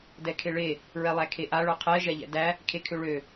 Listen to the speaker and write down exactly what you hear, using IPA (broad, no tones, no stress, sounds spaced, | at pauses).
d ɛ kʰ e ɭ e | ɹ ɛ lˠ æ kʰ e ʔ a ɭ œ qʰ ɛ ʒ ɛ ʎ ɛ̰ d æ | kʰ e kʰ ø ɭ ø